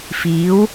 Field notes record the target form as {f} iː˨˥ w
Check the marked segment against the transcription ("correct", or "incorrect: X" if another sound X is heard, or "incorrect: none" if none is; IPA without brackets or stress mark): correct